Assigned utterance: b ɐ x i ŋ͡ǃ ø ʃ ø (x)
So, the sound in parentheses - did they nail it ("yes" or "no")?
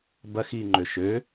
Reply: no